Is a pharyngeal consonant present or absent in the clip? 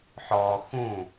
present